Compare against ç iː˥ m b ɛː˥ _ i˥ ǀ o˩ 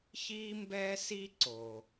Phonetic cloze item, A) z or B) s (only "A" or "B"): B